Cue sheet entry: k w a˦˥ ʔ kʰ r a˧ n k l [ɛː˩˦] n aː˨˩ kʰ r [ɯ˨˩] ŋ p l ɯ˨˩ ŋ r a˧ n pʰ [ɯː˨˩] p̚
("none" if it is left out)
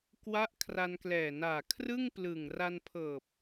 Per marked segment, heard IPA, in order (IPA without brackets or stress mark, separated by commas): ɛː˨˩, ɯ˥˩, ɤː˨˩